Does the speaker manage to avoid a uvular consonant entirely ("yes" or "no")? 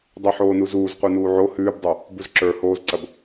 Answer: no